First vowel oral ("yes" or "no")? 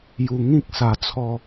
yes